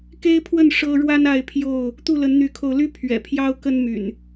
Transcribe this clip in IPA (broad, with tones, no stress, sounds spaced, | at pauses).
k e˦ ɪ̯ pʰ w ə˥˨ n ʂ ɤ˦ ɻ w a˦ n a˥˨ ɪ̯ pʰ j o˥˨ ʊ̯ | t̪ u˥˨ l ə˨˦ n n̪ y˨˦ kʰ o˧ ʊ̯ l y˦ pʰ ɥ ɛ̰˨˩ pʰ j ɑ˦ ʊ̯ k ə˦ n m y̰˨˩ n